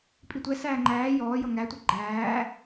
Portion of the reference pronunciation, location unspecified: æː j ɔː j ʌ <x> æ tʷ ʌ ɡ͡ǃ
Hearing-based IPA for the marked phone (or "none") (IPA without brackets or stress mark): ŋ